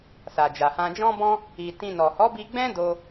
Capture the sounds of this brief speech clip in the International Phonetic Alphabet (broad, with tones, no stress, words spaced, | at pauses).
sa˨d͡ʒa˨hã˧ d͡ʒɔ̃˦bɔ̃˦ | i˧ tĩ˧nɔ˨ hɔ˨˦bi˧ɡ͡bɛ̃˦ do˦